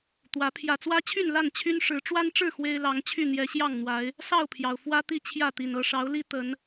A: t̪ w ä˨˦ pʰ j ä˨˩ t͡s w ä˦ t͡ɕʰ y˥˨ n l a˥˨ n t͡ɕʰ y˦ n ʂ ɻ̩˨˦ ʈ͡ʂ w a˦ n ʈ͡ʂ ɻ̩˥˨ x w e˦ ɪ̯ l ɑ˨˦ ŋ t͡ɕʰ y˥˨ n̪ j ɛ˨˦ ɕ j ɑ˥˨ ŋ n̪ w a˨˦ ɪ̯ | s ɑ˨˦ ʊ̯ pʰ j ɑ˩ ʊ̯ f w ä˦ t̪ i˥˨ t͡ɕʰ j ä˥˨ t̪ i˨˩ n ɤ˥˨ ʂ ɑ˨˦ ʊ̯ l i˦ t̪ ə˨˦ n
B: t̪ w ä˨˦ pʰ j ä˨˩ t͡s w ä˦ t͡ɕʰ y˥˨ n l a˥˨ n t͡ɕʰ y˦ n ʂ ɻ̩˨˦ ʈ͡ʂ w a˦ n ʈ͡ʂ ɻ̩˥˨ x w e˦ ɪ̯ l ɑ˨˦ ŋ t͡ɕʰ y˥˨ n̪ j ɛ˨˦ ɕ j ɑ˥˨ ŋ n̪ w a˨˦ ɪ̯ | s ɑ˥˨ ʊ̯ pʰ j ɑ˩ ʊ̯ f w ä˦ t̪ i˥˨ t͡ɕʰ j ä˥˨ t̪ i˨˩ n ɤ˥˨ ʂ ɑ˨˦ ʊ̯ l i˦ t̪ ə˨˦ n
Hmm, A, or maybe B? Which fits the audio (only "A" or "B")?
B